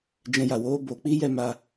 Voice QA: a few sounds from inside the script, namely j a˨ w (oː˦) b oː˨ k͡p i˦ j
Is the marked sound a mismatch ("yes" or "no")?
no